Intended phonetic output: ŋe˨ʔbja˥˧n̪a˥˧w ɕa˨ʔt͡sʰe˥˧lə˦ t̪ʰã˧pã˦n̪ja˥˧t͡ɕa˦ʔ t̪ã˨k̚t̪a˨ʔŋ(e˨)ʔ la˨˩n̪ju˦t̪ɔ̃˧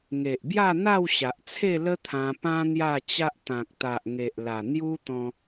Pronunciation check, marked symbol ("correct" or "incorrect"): correct